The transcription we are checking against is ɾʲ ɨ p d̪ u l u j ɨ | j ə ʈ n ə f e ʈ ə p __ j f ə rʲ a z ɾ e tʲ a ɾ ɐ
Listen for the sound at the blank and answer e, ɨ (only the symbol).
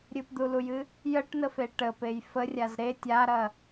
e